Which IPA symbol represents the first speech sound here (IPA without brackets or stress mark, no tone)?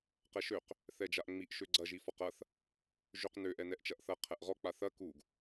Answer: q